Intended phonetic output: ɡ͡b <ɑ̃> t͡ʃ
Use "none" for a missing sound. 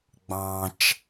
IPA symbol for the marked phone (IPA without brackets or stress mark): ɑ̃